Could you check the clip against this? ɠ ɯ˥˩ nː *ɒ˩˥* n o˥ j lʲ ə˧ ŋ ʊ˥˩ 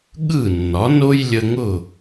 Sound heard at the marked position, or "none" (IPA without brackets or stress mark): ɒ˩˥